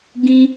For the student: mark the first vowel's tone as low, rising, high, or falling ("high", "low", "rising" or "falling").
high